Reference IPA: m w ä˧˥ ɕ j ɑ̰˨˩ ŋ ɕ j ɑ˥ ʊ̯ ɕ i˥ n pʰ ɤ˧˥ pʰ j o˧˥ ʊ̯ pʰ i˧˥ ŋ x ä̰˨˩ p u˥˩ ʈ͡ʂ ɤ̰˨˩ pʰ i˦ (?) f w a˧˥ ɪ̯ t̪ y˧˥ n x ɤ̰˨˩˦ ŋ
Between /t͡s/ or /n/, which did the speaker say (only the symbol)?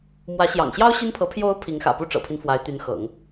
n